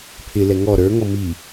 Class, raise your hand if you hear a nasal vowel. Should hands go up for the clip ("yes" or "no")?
no